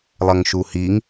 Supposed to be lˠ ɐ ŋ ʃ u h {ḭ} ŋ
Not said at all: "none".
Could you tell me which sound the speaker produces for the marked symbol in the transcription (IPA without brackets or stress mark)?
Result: i